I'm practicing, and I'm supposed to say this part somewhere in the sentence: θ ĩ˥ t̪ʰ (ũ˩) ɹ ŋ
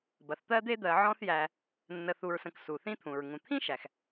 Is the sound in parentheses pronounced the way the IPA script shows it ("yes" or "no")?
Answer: yes